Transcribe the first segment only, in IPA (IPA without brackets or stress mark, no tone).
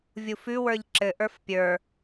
vʲ